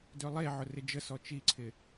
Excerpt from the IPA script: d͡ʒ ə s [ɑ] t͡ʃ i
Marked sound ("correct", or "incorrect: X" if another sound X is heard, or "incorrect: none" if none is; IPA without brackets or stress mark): incorrect: ɔ